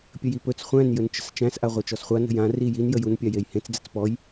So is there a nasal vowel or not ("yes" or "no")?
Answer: yes